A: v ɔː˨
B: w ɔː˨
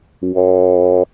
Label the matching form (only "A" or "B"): B